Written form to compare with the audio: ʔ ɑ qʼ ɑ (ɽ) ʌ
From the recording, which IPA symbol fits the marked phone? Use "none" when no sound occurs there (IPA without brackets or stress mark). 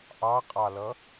l